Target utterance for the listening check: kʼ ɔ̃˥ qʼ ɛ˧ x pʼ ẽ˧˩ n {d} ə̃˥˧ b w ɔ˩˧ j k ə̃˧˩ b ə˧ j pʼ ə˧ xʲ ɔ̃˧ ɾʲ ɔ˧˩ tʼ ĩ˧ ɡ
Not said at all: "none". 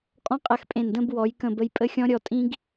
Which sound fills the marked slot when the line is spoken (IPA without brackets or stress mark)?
d